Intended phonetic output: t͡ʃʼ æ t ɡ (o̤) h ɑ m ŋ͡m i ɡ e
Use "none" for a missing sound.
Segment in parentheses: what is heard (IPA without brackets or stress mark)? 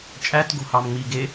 o̤